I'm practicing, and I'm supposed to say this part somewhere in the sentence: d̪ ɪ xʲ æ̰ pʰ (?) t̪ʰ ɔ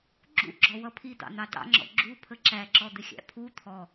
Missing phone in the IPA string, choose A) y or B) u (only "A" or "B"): B